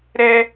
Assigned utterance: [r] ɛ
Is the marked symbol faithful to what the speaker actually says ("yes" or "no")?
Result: no